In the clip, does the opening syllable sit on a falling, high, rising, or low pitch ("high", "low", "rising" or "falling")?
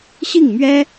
falling